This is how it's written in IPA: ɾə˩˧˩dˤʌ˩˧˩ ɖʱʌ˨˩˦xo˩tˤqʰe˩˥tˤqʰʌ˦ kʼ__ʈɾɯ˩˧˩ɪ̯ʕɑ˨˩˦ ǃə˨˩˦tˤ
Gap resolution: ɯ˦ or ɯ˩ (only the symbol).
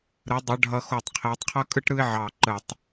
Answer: ɯ˦